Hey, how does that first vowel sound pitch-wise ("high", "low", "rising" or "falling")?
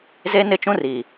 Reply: high